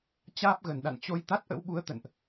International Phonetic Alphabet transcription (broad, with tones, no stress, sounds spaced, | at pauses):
t͡ɕ aː˦˥ p̚ ɣ ə˧˩ n ɗ a̰˧˨ n t͡ɕ o˧ j t̪ a˦˥ t̚ ʔ ə̰˧˥ w ɓ u˨˦ ə̯ t̪ ə̰˧˨ n ʔ